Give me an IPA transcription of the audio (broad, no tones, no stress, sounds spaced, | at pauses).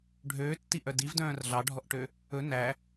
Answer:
ɖʱ øː tː i ʔ œ d i v d œ̃ː r ɮ ɑ ɖʱ ɔ ʔ ʈ ø | ɵ n æ